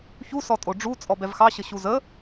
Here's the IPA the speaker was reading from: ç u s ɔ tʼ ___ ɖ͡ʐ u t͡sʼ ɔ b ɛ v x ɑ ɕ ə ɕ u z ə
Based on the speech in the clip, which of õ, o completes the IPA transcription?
o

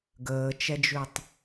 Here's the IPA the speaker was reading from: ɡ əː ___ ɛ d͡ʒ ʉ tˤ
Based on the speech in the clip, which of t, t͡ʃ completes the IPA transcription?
t͡ʃ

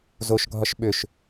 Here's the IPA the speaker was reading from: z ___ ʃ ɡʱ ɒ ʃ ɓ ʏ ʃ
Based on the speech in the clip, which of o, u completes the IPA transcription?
o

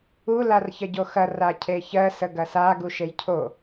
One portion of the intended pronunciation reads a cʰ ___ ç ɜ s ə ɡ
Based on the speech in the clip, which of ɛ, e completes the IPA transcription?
e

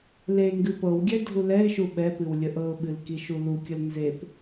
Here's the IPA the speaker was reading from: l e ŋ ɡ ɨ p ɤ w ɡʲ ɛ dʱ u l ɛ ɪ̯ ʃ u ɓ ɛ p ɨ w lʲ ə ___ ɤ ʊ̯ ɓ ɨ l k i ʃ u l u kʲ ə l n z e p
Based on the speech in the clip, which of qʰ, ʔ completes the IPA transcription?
ʔ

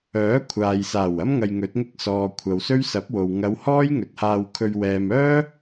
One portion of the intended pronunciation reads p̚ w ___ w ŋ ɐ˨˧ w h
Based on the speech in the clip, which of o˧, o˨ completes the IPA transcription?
o˨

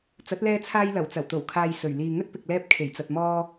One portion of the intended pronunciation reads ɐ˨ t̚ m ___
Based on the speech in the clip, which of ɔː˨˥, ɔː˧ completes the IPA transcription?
ɔː˧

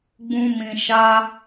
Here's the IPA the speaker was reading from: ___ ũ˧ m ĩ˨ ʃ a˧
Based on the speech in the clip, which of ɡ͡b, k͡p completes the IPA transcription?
ɡ͡b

